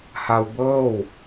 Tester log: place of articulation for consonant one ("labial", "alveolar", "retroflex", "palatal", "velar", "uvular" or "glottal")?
glottal